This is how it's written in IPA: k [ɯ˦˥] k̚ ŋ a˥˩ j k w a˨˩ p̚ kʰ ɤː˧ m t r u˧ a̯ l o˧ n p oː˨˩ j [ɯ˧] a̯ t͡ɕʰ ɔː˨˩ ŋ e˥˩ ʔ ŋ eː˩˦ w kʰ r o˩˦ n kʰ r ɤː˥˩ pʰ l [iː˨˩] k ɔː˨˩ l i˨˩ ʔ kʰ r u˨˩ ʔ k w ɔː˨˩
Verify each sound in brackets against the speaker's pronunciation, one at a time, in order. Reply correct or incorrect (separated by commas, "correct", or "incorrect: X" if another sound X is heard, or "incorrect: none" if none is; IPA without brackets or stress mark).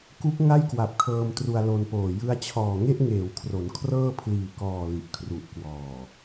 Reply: incorrect: u˦˥, correct, correct